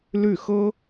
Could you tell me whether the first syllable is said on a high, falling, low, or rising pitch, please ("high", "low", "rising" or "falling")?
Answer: falling